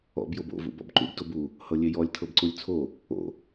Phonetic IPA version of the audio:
ɔ̰b jobo̰ vṵbɔ̰bǃṵb dobu | hɤlʲejɔlʲ tʰɤbǀulʲt͡sʰo | o̰

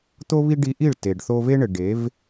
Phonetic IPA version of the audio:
t̪o˦βi˦ ɖi˧ʔi˦˨ɭ te˨ɖ θo˧ve˦ɳɘ˨ ɖe˨˦v

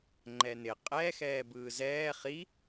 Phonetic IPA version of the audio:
ŋ͡ǃɛnɪ qʼɛ xɛːbɯːzɛː χi

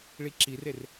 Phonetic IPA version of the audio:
ɭiǁirer

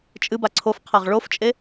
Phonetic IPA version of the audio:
t͡ʃʼɨba ǀʰofqʰaʁ ɭoft͡ʃʼe

